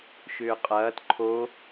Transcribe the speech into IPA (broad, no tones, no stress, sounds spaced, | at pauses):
ʃ ʏː qʼ ɐː t ǃʰ o